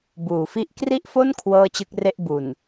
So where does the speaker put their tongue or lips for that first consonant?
lips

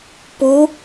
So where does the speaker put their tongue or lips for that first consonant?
lips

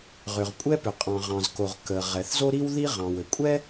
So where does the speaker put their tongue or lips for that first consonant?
uvula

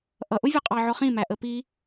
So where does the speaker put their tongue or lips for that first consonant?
throat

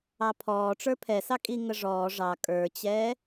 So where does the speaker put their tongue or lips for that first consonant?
lips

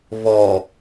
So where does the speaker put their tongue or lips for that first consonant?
lips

